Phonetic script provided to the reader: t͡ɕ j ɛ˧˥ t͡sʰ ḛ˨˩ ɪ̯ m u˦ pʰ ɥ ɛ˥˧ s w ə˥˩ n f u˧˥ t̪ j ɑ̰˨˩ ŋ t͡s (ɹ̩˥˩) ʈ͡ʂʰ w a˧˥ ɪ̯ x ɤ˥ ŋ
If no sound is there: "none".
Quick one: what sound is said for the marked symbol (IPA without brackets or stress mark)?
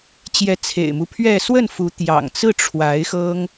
ɹ̩˥˩